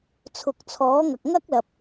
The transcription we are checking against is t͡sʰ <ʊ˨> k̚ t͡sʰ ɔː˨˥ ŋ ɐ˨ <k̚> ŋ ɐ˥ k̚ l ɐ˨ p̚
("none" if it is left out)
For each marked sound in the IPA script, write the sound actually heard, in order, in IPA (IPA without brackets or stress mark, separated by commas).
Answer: ʊ˨, k̚